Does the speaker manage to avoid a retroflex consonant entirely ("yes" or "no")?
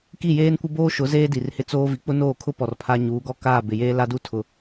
yes